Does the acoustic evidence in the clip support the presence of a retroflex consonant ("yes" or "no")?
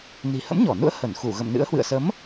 no